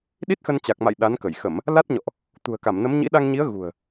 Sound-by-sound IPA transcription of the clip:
ɗi˦˥t̚xə˧nt͡ɕa˨˩k̚ma̰˧˨j ɗa˨˦nkə˧˩jxə˧˩˨m | la˦˥t̚ɲɔ̰˧˨ʔ | t̪ṳ˨˩ə̯ka˧˩mnə˨˦mɲḭ˧˥ ɗa˧ŋɲi˨˦ə̯ ɣṳ˨˩ə̯

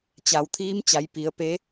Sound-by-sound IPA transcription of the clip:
t͡ɕa˩˧wt̪ʰiː˧˥m t͡ɕa˩˧jpi˩˧ə̯pe˧˥

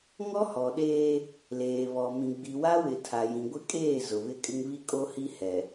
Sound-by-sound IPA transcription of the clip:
ŋɔ˦hɔ˨ɗeː˦ | leː˨βɔ˨ mĩ˨ɡ͡bi˨wa˦wɪ˨ tʰa˨jĩ˨ ɡʷɪ˦kʼeː˦˨ zʊ˨βɪ˦kʼɪ˦ŋ βi˦kʼo˦hi˦ hɛ˨

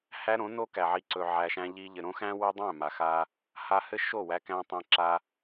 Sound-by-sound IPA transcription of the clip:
hæ˦ɾõ˨˦ no˦kæ˨ʕi˧ ǀɵ˧ʕæ˧ʃæ̃˦ ʎi˧ ʎɘ˨ɾõ˦xæ̃˦ wɘ˦dˤæ̃˦˨ma˨xa˧ | ha˧hɘ˦ ʃo˦˨wæ˧kæ̃˧ tˤæ̃˧ǁa˧

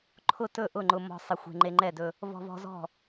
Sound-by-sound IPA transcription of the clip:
ǃʰʊ˥˩tɵ˥˩ ʔʊ˥˩ŋ͡ǃʊ˧mɔ̤˧ sˤə˧xʷe̤˧ ŋ͡ǃe˧ŋ͡ǃɛ˥˩dɵ˧ | vɔ̤˧vɔ̤˧ zɔ̤˥˩

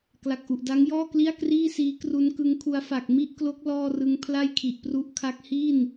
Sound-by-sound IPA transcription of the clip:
kla˨˩k̚ʔu˨˩ʔda˦˥ŋjɔː˥˩ kli˥˩a̯kriː˥˩siː˦˥ kru˦˥nkɯ˦˥ŋkʰu˦˥a̯ fa˨˩k̚mi˥˩ʔklo˦˥k̚ lɔː˥˩rɯ˦˥ŋ pʰla˥˩jkʰi˨˩ʔpru˦˥ʔkʰa˦˥k̚ hi˥˩n

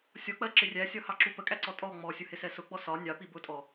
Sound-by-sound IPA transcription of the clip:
sʲɔk͡pɜǁɪ rʲæsʲɒhɑǁu pəkʼæǀɔ tʼɔ ŋ͡mɔsʲʊhɪsɛ sʊɡ͡bɔ sɒ nʲɑpi bʊtʼɔ

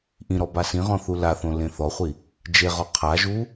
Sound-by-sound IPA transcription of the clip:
ʔĩɾɔ basĩʁɔ̃ θulaθõ lẽθɔχʷi | d͡ʒeʁɔ qʰaʒu

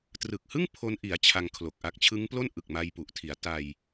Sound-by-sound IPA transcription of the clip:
trɯ˨˩k̚hɯ˥˩ŋ pʰo˦˥nʔi˩˦a̯ t͡ɕʰa˧ŋkʰlo˨˩k̚ʔa˦˥k̚ t͡ɕʰɯ˦˥ŋplo˥˩n ʔɯ˨˩k̚ma˧jpu˨˩ʔtʰi˩˦a̯ ta˧j

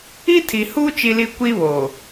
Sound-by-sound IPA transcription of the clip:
i˦tʰi˨huː˦ t͡ʃi˦li˦ kʷi˦βoː˨

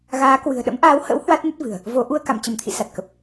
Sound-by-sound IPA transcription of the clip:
ɣaː˨˦kwɨ̤˨˩ə̯ ɗə̰˧˥mʔaː˨˦whə̰˧˥w hwa˦˥t̚nə˦˥t̚ vɨ̤˨˩ə̯ | vo˨˦ ʔu˧ə̯ka̰˧˨mt͡ɕə˧˩mt̪ʰḭ˧˨ sa˨˩t̚kə˨˩p̚

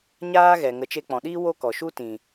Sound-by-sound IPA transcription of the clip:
ɲaː˦ɣɛ˨ ŋə˨˦t͡ʃe˧k͡pɔ̃˨ɗiː˦ wo˦kɔ˨ʃu˦ tĩ˨

